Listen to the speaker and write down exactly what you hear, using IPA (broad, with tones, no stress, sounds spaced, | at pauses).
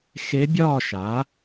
x e˧˥ bʲ ɒː˥˧ ʃ a˩˥